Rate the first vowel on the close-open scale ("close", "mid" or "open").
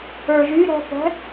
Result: mid